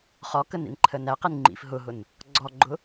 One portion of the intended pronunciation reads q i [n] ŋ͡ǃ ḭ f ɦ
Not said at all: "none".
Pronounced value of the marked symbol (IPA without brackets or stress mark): n